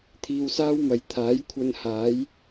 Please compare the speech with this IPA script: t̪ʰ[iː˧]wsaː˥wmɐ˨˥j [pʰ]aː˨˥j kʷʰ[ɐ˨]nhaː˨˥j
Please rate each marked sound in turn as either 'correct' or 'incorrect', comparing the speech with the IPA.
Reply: correct, incorrect, incorrect

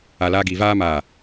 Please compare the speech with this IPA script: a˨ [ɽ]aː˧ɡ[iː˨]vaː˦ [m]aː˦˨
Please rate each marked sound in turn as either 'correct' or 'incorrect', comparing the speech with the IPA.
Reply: incorrect, correct, correct

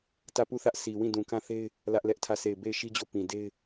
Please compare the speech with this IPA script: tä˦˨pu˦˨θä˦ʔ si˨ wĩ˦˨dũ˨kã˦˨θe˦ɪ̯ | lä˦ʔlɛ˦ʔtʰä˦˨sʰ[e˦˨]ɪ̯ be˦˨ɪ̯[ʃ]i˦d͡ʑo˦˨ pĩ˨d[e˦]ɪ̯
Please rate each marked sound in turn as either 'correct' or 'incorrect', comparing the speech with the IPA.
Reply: correct, correct, correct

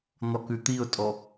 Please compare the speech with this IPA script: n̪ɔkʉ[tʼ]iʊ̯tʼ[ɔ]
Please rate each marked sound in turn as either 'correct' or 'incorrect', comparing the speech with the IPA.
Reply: incorrect, correct

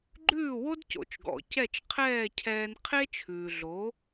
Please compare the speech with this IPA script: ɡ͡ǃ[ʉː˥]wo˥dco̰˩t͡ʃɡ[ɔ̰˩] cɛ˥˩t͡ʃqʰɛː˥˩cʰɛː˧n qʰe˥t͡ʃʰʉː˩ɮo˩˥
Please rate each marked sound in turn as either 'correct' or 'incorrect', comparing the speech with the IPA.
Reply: incorrect, correct

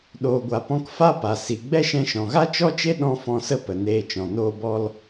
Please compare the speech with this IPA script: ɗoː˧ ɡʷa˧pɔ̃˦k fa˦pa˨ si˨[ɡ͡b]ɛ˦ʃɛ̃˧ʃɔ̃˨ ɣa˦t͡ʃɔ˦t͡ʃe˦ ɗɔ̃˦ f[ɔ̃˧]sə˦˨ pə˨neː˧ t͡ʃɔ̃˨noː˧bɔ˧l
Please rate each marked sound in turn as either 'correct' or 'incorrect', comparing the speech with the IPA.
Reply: correct, correct

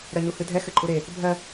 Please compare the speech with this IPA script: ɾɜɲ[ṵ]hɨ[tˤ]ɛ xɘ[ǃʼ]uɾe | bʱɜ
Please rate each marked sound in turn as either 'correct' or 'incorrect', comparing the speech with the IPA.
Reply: incorrect, incorrect, correct

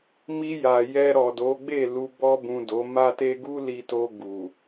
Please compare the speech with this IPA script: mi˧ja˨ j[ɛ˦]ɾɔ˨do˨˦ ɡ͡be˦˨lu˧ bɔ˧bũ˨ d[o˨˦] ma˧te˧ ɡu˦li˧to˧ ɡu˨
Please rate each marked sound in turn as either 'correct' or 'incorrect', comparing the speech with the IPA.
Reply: incorrect, correct

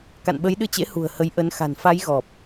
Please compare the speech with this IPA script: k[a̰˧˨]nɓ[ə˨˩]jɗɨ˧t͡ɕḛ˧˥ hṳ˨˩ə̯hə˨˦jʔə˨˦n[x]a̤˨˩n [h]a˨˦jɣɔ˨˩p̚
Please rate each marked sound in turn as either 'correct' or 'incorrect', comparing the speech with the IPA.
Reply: correct, incorrect, correct, incorrect

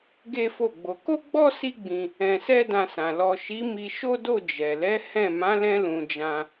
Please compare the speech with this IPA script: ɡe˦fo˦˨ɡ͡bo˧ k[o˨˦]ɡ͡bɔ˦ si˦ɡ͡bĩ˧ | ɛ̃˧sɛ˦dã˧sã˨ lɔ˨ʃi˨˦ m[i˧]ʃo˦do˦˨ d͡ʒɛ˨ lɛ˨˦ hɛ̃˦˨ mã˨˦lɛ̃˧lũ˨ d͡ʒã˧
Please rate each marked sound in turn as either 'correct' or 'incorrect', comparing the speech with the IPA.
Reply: incorrect, correct

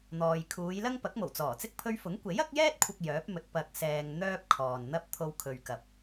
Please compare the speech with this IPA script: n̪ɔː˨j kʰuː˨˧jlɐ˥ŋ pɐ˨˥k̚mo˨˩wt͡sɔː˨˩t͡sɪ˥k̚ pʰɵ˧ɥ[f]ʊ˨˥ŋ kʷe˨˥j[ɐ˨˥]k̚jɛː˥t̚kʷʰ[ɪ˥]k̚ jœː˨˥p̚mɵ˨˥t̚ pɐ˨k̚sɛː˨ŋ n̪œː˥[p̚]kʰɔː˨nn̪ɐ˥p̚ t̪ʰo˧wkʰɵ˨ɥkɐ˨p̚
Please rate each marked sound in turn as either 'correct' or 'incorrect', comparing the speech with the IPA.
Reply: correct, correct, incorrect, correct

